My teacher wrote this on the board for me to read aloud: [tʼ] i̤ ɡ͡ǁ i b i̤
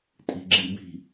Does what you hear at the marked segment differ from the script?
no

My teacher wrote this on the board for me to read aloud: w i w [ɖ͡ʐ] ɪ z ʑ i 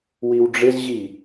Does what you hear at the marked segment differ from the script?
no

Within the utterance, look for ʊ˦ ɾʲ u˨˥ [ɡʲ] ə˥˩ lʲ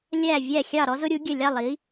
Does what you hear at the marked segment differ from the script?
no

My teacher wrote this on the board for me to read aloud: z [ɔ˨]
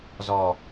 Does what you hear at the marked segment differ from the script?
no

